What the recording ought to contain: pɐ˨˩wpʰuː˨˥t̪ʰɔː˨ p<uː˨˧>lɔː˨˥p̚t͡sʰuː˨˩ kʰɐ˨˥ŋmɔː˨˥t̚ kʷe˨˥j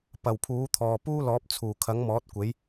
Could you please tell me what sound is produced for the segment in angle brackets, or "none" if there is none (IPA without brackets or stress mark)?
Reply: uː˥